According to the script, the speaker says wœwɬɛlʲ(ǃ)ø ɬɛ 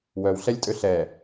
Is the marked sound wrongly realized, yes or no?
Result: yes